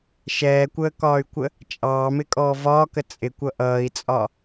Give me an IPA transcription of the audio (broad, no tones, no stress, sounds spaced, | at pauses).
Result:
ʃ ɛː kʷ əː k ɒː y̯ kʷ ə | t͡ʃʼ ɑː m ɪ kʼ ɔː v ɒː k ə t͡sʼ ɪ kʷ ʌ ʔ ʌː i̯ t͡sʼ ɒ